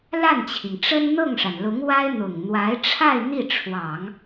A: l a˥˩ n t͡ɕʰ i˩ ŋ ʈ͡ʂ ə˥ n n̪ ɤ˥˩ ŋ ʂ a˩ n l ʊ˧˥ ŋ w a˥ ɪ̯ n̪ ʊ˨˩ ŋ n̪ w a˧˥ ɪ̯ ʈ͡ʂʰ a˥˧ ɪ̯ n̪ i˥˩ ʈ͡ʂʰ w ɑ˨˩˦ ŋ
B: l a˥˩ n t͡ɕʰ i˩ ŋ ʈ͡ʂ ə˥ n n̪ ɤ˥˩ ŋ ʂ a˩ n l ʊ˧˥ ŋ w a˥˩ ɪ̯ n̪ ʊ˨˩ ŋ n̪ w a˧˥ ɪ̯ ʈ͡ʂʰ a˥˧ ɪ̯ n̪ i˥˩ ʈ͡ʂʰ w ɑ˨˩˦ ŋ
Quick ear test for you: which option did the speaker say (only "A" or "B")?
A